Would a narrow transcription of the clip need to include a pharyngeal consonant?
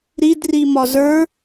no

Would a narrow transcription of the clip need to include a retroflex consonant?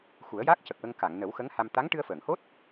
yes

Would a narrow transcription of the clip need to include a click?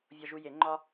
yes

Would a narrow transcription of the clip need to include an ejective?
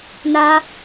no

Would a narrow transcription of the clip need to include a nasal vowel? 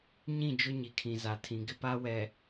yes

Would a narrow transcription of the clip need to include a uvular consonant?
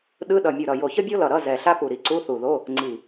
no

